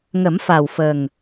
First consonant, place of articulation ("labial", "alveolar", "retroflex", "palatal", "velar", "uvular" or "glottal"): velar